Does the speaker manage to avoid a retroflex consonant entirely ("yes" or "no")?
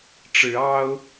no